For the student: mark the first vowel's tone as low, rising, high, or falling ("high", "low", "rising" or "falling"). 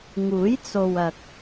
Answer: rising